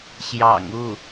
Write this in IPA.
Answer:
ɕ j ɑ̰˨˩ ŋ u˥˩

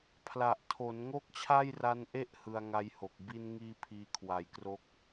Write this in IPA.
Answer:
pʰ l a˨˩ ʔ tʰ o˩˦ n ŋ o˥˩ k̚ t͡ɕʰ a˥˩ j r a˦˥ n ʔ e˥˩ ʔ h ɯ˧ a̯ ŋ a˦˥ j h o˨˩ k̚ b i˧ n ŋ iː˧ pʰ iː˧ kʰ w a˩˦ j k r o˦˥ k̚

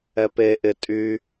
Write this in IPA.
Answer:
ɛ p e ʔ ɪ tʼ y

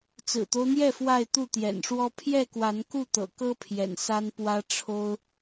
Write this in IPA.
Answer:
t͡s ɹ̩˨˩ t̪ o˦ ʊ̯ n̪ j ɛ˥˨ f w a˥˨ ɪ̯ t̪ u˥˨ t̪ j ɛ̰˨˩ n ʂ w ɔ˦ pʰ j ɛ˥˨ k w a˨˦ n k u˥˨ t̪ ɤ̰˨˩ k ɤ˦ pʰ j ɛ̰˨˩ n s a˦ n p w ä˦ ʈ͡ʂʰ o˦ ʊ̯

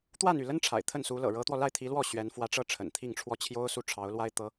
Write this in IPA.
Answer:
t̪ w a˥˧ n y˥˩ l ə˥ n ʈ͡ʂʰ a̰˨˩ ɪ̯ t̪ʰ ə˥˩ n s u˧˥ l ɤ̰˨˩ ɻ ɤ˧˥ t̪ w ɔ˧ l a˥˩ ɪ̯ t̪ʰ i˧˥ l w ɔ˥˩ ɕ ɥ ɛ˧˥ n f w ä˧˥ ʈ͡ʂ ɤ˥˩ ʈ͡ʂʰ ə̰˨˩ n t̪ʰ i˥˧ ŋ ʈ͡ʂʰ w ɔ˥˩ t͡ɕʰ j o˥ ʊ̯ s u˥˩ ʈ͡ʂʰ ɑ˧˥ ʊ̯ l w a˥ ɪ̯ t̪ ɤ˧˥

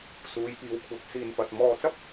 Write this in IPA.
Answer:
s uː˨˧ j p iː˨ w kʷʰ ɐ˨˥ k̚ s iː˧ n p ɐ˧ t̚ m ɔː˧ t͡s ɐ˥ p̚

